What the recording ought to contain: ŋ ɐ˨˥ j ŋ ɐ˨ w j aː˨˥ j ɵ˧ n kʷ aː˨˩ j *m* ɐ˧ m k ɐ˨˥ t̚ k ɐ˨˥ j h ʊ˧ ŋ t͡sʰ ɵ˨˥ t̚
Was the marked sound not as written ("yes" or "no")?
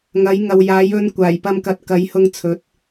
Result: yes